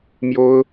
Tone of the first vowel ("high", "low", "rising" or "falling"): high